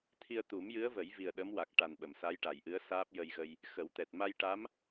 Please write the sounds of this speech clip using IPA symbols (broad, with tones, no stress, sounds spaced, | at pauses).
t̪ʰ i˧ ə̯ t̪ u˨˩˦ m j ɨ˧˥ ə̯ v ə˨˩˦ j v i˨˩ ə̯ ɗ ə˧˥ m w a˨˩ k̚ ʈ a˨˩ n ɓ ə˨˩˨ m s a˧˥ j ʈ a˨˩˨ j ʔ ɨ˧˥ ə̯ s aː˦˥ p̚ j ə˧ j ɣ ə˧ j | x ə˨˩˦ w t̪ ɛ˨˩ t̚ m a˧ j ʈ a˧˥ m